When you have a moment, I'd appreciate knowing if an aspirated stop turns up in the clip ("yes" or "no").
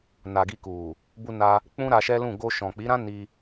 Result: no